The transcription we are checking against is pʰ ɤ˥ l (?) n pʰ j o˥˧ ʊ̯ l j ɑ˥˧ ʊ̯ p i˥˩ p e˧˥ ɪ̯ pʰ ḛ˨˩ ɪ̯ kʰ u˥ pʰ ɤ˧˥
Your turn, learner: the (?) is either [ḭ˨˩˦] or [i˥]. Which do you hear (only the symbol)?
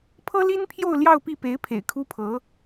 i˥